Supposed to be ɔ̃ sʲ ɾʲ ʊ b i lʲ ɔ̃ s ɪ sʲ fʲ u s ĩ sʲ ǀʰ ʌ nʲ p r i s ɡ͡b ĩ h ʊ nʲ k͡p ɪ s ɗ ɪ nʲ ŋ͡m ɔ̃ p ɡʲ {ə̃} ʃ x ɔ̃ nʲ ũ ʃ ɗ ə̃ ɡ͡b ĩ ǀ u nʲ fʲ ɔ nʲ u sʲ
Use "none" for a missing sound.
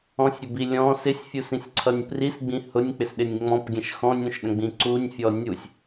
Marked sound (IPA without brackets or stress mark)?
ə̃